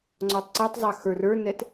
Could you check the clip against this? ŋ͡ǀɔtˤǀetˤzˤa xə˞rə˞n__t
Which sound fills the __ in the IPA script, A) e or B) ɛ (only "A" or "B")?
B